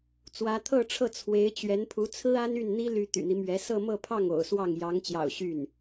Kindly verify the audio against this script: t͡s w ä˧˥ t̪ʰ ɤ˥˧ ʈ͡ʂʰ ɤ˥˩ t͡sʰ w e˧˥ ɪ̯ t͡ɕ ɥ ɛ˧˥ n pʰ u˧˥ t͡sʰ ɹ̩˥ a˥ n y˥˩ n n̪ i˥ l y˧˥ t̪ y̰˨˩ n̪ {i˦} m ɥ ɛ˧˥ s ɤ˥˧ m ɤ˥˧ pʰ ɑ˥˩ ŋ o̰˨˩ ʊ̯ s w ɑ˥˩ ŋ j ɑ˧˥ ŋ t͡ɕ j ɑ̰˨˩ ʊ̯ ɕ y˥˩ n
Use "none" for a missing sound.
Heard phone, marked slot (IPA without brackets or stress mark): i˦